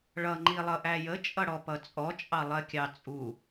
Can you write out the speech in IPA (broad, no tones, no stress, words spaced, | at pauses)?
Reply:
ɭʌ ŋ͡ǃilˠʌʔæjə t͡ʃʼʌɽɔpʌt͡sʼɔ t͡ʃʼɑlˠɜkʲɑt͡sʼu